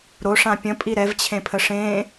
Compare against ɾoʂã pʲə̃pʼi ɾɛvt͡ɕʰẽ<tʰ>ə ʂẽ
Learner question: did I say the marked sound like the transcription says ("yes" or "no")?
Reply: no